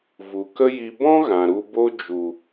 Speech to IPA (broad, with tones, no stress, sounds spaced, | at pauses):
v u˨ k ə˦ j i˧ b ɔ̃˦ ɣ ã˨ ɾ u˧ b o˦ d͡ʒ u˨